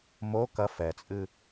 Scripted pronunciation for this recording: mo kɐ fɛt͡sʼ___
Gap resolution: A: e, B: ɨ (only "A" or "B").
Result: B